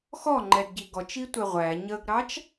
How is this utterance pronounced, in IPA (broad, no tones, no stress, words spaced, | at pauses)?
xɔŋ͡ǃɛdɟi ɡɔt͡ʃitʷɛ ʁʷæ ɲəɡɾɑt͡ʃ